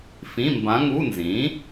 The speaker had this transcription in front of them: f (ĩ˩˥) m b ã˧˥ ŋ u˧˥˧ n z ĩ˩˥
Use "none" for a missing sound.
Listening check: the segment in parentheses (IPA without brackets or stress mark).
ĩ˧˥˧